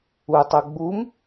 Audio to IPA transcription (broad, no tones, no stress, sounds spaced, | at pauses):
u tˤ u ɡ͡b u m